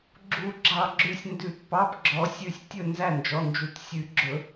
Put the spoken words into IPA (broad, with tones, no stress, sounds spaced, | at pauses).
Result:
ɡ͡ǁ u˨˩˦ ɡ͡ǁ ɑ˧˩ ɡ͡ǁ ʉ˧˩ sʲ n d ʉ˨˩˦ t p ɑ˩˧˩ p ɡ͡ǁ ɔ˨˩˦ sʲ ʉ˧˩ sʲ tʲ ɵ˥˩ n z æ˥˩ n d͡ʒ ɔ˩˧˩ n d͡ʒ u˨˩˦ t sʲ ʉ˨˩˦ ɡ͡ǁ ɵ˨˩˦